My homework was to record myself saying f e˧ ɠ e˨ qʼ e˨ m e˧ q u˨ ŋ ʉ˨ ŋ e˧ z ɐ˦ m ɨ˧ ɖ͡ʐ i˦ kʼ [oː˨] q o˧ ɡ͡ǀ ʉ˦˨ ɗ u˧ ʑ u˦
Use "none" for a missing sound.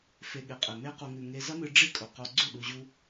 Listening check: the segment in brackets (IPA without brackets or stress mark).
o˨